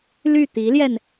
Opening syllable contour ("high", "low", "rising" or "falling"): falling